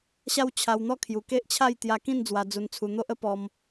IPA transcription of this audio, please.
ɕa˦wt͡ɕʰa˧wn̪ɔ˥˧kʰju˨˩ ke˦ʔt͡ɕʰa˥˧jt̪ja˧kĩ˥˧n d͡zwa˧d͡zu˧nt͡sʰu˧ n̪o˦ʔə˦pɔ˧m

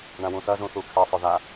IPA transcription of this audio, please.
ɳãwũθɐ zũθukʰe sˤøða

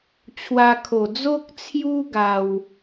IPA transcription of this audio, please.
t͡ɕʰwa˧kʰo˨˩ d͡zo˦k̚t͡sʰju˦ ɡa˧w

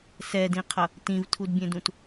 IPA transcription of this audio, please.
sɛdĩqʰʌ | tĩvtʰudbʲẽdũt

